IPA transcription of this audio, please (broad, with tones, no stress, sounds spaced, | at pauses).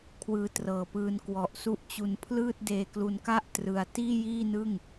kʰ w ɯː˧ t r ɤː˨˩ p ɯː˧ n k w ɔ˨˩ ʔ s u˦˥ ʔ t͡ɕ u˧ n pʰ l ɯː˥˩ t̚ d eː˧ k l u˧ n k a˥˩ ʔ t r ɯ˧ a̯ t iː˥˩ j iː˥˩ n ɯ˥˩ ŋ